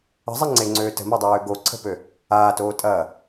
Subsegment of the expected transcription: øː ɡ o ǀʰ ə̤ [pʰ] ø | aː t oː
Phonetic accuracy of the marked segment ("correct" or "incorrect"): incorrect